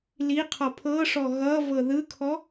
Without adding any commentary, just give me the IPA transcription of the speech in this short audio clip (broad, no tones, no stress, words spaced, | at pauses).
li qʰɔpʰɤʂɔ ɣʌ vɤðɯkʰɔ